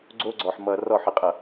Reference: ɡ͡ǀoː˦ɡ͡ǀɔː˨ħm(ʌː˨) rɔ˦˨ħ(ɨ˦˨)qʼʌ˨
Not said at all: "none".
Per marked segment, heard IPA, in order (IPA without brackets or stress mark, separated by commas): ʌː˨, ɨ˨